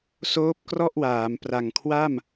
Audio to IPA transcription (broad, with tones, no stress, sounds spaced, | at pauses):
s oː˦˥ p̚ k r ɔ˥˩ ʔ w aː˩˦ m p r a˨˩ ŋ kʰ w a˥˩ m